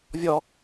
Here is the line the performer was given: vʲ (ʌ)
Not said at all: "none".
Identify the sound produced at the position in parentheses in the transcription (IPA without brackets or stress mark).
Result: ɔ